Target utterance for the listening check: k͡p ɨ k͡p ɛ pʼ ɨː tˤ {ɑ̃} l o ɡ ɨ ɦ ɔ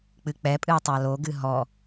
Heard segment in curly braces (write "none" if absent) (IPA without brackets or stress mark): ɑ